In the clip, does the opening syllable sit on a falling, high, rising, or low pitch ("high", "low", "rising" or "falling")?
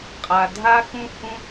low